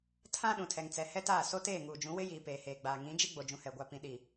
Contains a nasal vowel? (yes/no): yes